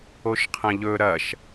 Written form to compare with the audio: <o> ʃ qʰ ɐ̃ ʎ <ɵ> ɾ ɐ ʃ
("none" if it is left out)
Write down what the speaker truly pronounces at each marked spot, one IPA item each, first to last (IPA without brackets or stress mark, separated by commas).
o, ɵ